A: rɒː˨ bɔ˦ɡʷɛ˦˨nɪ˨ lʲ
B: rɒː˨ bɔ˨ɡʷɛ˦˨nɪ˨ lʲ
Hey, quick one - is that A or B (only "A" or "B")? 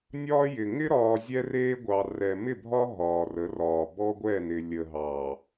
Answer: A